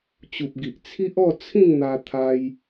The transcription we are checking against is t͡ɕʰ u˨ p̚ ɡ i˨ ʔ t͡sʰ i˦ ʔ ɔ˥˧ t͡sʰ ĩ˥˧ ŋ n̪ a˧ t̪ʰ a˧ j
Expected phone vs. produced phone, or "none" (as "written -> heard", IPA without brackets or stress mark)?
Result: t͡ɕʰ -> t͡ɕ